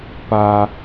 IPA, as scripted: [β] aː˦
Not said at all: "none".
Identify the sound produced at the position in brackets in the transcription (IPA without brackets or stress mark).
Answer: p